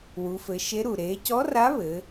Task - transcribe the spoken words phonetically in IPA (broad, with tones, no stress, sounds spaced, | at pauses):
w u˩˧ f ɘ˩˧ ʃ e˧˥ ɾ u˩ ɾ eː˩˧ c ɔ˧˥ r a˧˥ β ɘː˩˧